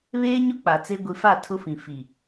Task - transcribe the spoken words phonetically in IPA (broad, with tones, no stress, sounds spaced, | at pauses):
β eː˦ ɲ ʊ˦ k͡p a˨ t͡s e˦ ɡʷ i˨ f a˦˨ tʰ ʊ˦ f ĩ˨ f i˨